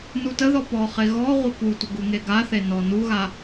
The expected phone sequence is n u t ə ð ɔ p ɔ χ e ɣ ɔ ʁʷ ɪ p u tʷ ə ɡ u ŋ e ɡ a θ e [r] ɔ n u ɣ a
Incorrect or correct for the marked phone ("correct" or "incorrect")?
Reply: incorrect